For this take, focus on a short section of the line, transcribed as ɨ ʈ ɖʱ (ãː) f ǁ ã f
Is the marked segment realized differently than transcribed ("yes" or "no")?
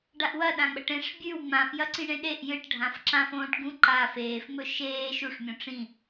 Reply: yes